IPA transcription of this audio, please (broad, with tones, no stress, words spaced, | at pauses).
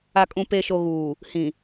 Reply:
a˨kʼũ˨ pe˨ʃo˨ɣuː˨ | hĩ˨